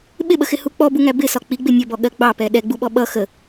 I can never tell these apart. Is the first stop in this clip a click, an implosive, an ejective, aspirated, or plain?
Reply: implosive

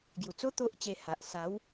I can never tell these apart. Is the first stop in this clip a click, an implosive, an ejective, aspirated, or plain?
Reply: plain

